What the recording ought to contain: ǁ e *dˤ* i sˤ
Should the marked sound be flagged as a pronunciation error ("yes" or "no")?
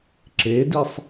yes